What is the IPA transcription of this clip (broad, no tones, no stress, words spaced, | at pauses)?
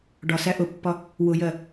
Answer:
ɖɒsæ ʔʊpːɒ | wʊjɜ